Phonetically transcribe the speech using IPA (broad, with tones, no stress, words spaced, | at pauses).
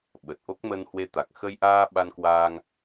ɓə˨˩t̚ʔo˦˥k̚ mə˧nhwe˧t̪a˨˩k̚ xə˧jʔaː˧ ɓa˧nkwaː˧ŋ